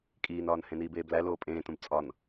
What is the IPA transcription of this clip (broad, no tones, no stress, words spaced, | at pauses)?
kʼiːnɒːn hẽniːbeːblæ loːpʼẽːtũb t͡sʼɒn